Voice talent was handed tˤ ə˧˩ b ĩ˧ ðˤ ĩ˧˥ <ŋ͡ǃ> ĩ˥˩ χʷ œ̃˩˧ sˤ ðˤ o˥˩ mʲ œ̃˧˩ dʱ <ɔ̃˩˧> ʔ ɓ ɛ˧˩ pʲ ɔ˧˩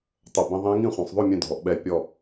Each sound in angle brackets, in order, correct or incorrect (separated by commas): incorrect, incorrect